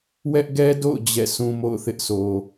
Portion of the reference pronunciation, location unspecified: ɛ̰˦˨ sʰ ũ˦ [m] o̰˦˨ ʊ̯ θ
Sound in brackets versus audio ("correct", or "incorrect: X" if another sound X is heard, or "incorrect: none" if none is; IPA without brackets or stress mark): correct